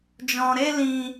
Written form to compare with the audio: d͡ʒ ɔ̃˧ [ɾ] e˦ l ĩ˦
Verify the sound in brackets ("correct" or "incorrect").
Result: correct